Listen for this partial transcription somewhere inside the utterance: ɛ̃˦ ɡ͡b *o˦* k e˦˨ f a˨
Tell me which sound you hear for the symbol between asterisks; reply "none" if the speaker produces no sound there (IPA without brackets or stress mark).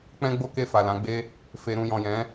o˦